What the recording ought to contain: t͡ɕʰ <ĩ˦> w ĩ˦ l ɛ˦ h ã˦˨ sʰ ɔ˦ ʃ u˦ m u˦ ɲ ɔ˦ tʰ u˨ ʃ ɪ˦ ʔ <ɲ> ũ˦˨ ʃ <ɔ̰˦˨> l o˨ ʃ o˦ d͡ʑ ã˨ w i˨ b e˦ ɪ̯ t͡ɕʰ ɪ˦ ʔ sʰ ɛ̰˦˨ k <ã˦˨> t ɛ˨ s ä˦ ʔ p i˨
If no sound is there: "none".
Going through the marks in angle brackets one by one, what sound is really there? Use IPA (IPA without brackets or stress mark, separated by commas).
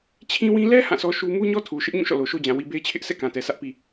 ĩ˦, ɲ, ɔ̰˦˨, ã˨